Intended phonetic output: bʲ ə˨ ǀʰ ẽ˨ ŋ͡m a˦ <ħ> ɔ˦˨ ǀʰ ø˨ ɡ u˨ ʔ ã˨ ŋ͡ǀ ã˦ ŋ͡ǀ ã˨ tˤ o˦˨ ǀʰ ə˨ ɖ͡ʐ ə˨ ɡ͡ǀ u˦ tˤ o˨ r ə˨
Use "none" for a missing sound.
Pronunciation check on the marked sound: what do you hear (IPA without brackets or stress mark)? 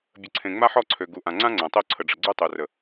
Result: ħ